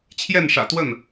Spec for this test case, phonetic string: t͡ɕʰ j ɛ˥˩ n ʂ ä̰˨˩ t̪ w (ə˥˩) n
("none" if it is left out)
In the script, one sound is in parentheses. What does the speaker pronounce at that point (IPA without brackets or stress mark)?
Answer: ə˥˩